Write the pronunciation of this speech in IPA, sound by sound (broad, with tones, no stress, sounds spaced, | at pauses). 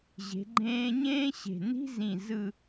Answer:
ʑ e̤˩˧ ɡ͡ǃ ẽː˧ ɲ ẽː˥ ɕ e̤˧˩ n i̤˥ z ĩ˧˩ z ɯ˥˧